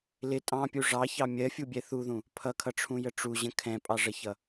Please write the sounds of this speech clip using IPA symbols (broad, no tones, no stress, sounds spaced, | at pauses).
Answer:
l ɪ tʼ ɑ̃ pʲ u ʐ ɑ ç ɑ mʲ ɜ fʲ u bʲ ɛ θ u ð ũ | pʰ ʌ kʰ ʌ ʈ͡ʂʰ ũ j ə ʈ͡ʂ u ʑ ə̃ kʰ ɛ̃ pʼ ɑ ʐ ə ç ʌ